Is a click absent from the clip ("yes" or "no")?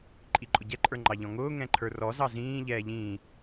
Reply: no